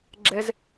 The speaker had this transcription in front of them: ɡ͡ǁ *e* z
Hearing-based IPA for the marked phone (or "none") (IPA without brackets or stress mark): ɛ